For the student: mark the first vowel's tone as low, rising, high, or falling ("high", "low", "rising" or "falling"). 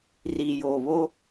low